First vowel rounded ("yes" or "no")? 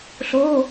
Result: yes